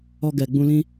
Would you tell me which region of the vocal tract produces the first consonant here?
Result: velum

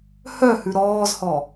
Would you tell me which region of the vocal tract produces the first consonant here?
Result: throat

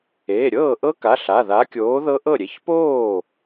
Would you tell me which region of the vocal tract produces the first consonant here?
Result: tongue tip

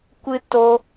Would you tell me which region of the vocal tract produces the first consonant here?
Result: velum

